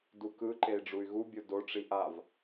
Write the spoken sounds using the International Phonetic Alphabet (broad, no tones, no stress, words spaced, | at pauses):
dukɯǃei̯ ɖ͡ʐuy̯ɣubʲo doʈ͡ʂi ʔav